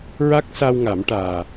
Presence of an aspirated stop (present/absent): absent